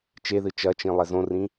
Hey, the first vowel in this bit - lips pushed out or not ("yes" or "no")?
no